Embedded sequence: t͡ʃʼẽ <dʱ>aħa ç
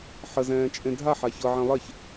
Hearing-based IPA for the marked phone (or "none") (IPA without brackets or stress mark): dʱ